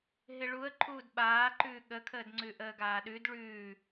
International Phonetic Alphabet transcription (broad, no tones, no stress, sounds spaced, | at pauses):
ɦ ɪ ɭ u ə̯ ǃʰ uː d ɓ aː ǃ ʉː ɠ ə kʰ əː d ŋ͡ǀ ʉ ʔ əː ɡ aː ɗ ʉ d ɭ ʉː